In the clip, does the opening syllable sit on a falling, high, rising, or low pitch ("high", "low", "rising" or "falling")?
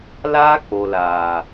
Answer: high